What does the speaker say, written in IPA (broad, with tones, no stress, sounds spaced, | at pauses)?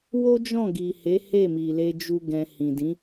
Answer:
w o˦ d͡ʒ ɔ̃˦˨ ɡ i˨ h e˨˦ h e˦˨ m i˨ l e˧ d͡ʒ u˧ ɡ ɛ̃˧ h ĩ˨ d ĩ˨˦